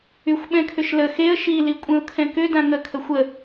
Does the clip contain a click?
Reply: no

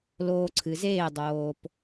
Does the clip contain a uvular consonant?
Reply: no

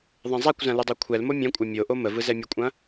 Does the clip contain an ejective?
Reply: yes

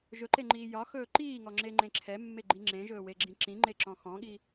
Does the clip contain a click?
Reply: yes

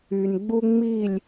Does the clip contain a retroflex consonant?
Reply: no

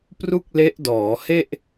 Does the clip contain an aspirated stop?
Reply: no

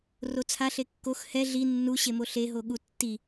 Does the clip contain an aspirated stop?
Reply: yes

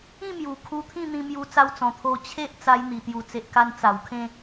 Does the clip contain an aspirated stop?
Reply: yes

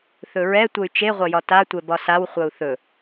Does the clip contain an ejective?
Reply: no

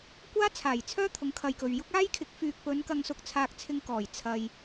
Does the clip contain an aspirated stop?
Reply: yes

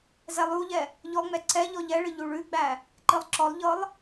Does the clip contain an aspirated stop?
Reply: no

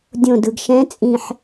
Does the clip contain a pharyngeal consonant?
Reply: yes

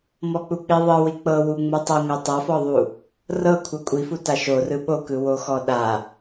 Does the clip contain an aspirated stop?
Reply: yes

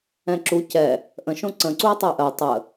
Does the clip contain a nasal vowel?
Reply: yes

